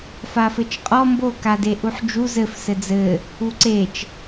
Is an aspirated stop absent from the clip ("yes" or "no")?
yes